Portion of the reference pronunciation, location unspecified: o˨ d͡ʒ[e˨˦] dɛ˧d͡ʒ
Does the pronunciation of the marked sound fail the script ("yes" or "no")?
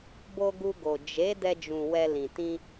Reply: no